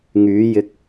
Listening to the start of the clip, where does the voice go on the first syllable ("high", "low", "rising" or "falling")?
rising